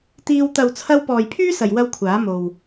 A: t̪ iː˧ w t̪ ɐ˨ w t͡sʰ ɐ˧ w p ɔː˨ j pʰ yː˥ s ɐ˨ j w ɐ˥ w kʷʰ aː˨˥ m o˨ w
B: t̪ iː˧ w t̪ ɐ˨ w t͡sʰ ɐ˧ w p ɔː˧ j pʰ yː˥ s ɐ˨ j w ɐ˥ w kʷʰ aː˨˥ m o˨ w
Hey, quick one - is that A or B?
A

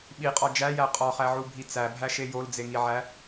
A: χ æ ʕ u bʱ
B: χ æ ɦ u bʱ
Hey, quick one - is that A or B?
A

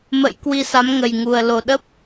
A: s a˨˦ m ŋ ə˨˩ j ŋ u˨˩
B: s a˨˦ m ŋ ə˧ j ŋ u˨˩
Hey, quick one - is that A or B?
A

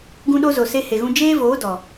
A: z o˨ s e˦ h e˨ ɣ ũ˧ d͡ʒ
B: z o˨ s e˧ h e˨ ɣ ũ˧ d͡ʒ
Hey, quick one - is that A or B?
B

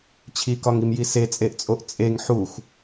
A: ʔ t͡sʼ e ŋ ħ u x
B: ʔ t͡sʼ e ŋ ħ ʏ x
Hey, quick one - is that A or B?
A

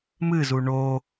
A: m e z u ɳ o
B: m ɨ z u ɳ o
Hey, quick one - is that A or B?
B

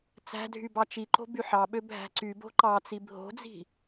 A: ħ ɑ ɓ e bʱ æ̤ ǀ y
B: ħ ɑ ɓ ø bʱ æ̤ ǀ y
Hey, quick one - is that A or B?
B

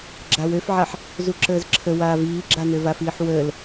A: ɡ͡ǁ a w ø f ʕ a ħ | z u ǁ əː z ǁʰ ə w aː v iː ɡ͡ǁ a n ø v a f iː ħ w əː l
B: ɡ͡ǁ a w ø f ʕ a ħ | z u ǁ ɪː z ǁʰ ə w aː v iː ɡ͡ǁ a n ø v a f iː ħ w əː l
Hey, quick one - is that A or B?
A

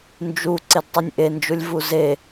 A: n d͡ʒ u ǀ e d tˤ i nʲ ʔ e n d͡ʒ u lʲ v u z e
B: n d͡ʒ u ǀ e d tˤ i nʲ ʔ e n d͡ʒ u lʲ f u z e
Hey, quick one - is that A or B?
A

